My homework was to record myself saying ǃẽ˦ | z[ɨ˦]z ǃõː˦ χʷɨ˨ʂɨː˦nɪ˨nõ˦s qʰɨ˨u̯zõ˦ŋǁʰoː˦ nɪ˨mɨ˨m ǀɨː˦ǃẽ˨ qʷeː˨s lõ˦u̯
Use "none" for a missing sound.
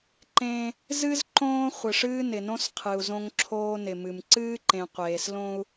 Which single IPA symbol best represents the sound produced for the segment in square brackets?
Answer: ɨ˦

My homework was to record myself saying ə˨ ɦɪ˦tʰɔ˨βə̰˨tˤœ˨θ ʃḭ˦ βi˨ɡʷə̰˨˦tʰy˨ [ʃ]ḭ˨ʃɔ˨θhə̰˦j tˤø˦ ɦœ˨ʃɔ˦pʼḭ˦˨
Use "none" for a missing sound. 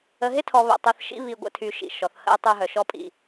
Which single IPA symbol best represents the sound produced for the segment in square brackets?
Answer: ʃ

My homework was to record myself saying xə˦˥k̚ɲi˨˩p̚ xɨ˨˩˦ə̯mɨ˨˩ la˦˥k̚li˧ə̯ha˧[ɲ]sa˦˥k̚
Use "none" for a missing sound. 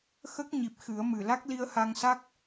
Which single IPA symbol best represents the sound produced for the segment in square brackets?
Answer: ŋ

